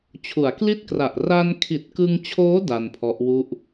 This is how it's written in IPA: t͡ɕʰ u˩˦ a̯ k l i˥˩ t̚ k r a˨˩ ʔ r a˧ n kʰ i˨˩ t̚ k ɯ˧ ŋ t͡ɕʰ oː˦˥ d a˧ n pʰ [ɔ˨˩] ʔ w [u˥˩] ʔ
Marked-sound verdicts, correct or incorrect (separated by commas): incorrect, correct